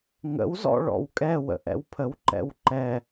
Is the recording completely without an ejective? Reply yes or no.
no